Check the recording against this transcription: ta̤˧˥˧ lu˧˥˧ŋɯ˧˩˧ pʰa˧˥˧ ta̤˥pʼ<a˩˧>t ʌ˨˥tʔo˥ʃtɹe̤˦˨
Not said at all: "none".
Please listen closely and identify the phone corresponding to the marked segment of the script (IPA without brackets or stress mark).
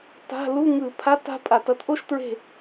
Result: a˧˩˧